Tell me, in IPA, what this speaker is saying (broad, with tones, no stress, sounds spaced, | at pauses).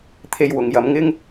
t̪ʰ e˧ j w ʊ˨ ŋ j ɐ˨˧ m ŋ ɪ˥ ŋ